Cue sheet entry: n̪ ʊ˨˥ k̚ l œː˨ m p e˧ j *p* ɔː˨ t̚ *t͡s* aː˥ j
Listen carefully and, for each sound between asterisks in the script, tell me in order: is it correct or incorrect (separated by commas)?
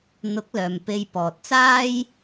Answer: correct, correct